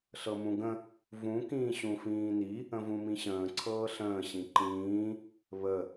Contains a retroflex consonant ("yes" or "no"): no